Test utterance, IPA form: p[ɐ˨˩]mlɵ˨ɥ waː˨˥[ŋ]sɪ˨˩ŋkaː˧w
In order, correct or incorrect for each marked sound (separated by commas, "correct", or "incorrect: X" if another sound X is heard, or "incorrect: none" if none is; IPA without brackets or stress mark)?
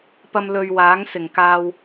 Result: incorrect: ɐ˧, correct